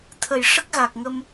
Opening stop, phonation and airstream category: aspirated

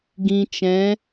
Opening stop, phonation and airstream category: plain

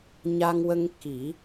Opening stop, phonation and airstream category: plain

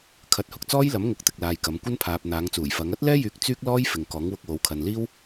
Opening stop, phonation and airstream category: aspirated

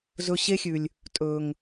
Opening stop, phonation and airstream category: ejective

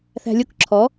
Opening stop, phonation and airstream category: plain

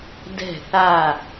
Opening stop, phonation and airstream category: plain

